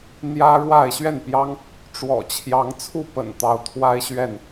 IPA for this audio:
n̪ j ä˦ ɻ w a˥˨ ɪ̯ ɕ ɥ ɛ˥˨ n p j ɑ˦ ŋ | ʈ͡ʂ w ɔ̰˨˩ t͡ɕʰ j ɑ˨˦ ŋ t͡sʰ u˥˨ p ə̰˨˩ n t̪ ɑ˨˦ ʊ̯ t̪ʰ w a˦ ɪ̯ ɕ ɥ ɛ˥˨ n

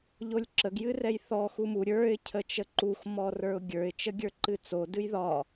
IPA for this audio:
ʎ o lʲ ǁ ə ɡ j ɨ r ɛ j θ ɔ x u m u ɾʲ ə˞ ɪ̯ cʰ ə t͡ʃ ə ǃ u x m ɔ r ə˞ ʊ̯ ɡʲ ə˞ ɪ̯ t͡ʃ ə ɡʲ ə˞ ǃ ɨ t͡s o d ɨ j ð ɒ

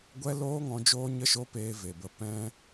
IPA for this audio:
ɡʷ ɛ˦ l oː˦ ŋ ɔ̃˧ d͡ʒ oː˦ ɲ ə˦ ʃ o˦ p eː˧ v e˨ b ə˧ p ɛ̃˧

